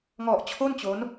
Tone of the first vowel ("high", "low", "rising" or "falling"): low